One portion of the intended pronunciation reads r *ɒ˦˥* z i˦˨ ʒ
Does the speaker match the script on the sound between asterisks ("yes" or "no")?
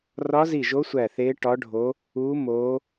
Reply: yes